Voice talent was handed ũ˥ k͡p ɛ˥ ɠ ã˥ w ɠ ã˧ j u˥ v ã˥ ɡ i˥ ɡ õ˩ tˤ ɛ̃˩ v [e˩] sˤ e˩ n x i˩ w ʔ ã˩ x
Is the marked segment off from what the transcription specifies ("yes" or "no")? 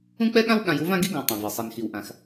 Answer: no